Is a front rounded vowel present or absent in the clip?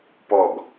absent